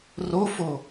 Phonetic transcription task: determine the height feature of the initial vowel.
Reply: mid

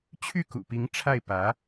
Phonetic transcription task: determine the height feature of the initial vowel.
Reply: high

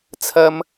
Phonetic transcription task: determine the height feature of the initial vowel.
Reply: low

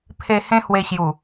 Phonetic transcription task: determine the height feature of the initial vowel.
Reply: mid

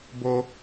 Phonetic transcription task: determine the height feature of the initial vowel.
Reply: mid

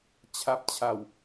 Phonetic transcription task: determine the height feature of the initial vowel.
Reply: low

